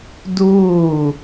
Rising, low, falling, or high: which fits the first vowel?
falling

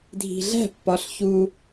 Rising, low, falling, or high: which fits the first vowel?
low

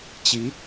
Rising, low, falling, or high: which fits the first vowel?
rising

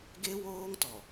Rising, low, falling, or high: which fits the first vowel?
high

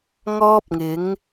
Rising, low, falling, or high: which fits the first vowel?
high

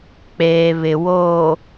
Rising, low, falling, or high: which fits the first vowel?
low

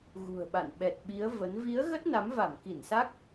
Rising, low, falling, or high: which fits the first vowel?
low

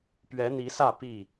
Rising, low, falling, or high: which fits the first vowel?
rising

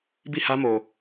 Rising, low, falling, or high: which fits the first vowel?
falling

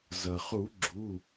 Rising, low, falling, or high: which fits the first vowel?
low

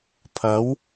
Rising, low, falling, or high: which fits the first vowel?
rising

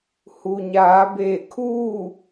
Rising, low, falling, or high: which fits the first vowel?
low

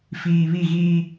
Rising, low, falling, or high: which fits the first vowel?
low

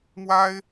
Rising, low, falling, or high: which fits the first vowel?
high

